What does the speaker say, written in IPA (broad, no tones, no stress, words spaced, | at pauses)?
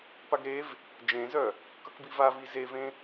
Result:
paɡɾev | d͡ʒẽzœ | kʌkbivavi zevẽ